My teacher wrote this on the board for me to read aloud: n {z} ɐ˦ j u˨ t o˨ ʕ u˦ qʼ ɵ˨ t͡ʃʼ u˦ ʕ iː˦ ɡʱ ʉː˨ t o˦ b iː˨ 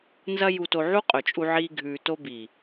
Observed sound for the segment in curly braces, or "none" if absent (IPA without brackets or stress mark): z